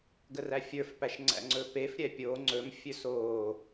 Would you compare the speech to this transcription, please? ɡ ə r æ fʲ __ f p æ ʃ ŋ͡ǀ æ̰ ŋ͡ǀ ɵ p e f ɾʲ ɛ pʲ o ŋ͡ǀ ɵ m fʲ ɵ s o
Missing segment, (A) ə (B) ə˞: B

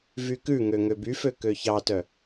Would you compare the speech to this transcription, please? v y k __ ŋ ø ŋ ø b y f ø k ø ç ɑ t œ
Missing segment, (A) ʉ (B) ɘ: A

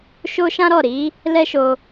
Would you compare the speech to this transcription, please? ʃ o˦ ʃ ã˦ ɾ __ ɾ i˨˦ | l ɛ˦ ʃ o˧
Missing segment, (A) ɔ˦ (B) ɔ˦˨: B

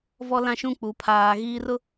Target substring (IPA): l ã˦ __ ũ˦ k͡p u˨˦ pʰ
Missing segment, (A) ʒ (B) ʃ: B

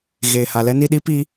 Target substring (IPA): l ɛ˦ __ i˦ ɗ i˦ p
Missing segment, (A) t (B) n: B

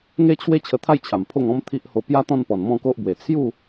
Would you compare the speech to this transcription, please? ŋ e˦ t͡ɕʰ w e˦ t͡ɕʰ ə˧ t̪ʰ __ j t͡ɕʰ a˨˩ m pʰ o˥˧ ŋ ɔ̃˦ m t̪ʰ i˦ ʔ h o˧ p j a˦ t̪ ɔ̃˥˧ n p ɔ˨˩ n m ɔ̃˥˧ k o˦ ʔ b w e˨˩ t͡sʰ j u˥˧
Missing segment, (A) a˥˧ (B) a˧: A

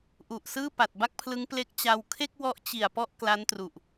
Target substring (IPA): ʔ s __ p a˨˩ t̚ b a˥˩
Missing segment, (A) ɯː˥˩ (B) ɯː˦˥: A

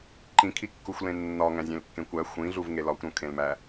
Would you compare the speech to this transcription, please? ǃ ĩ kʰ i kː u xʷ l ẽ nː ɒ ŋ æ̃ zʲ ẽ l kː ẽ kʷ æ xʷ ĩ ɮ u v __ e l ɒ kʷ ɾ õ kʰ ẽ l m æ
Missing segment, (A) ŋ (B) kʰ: A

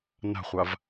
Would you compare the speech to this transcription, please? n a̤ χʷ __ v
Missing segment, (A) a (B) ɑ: A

